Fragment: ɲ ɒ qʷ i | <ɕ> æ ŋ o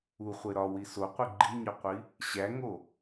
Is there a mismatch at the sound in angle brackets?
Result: no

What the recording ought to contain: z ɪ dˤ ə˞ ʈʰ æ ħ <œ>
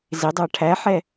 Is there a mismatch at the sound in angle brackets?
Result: yes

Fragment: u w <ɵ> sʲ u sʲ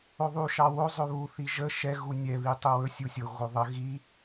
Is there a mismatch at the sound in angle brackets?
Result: no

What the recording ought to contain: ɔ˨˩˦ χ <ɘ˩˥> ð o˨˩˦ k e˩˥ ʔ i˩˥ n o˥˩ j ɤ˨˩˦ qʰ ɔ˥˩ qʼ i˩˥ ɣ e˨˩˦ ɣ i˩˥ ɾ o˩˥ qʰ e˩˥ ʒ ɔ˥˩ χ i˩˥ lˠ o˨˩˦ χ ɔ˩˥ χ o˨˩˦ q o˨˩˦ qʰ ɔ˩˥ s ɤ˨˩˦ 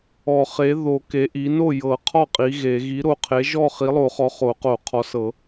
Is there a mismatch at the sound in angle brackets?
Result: yes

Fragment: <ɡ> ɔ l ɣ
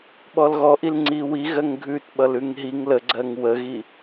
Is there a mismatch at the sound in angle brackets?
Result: yes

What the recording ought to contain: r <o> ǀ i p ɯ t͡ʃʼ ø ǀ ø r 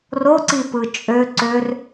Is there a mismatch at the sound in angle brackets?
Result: no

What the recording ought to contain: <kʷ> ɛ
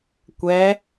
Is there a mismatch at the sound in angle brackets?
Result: no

